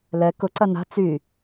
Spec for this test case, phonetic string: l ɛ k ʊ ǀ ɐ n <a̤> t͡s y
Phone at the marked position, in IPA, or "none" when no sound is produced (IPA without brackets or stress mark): a̤